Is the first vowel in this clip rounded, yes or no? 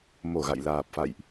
yes